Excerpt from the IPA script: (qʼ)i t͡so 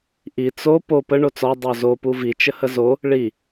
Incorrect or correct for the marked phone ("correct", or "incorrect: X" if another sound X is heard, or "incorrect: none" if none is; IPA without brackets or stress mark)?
incorrect: ʔ